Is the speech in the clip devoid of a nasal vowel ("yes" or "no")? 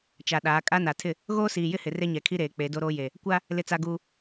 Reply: yes